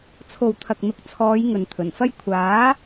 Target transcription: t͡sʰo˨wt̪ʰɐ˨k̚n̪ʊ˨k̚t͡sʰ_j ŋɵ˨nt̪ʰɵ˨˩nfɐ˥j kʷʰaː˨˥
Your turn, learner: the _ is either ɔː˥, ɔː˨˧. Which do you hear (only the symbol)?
ɔː˨˧